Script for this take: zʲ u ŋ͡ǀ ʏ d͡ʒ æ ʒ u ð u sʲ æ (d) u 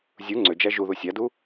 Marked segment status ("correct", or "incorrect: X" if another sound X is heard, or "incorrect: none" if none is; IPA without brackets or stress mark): correct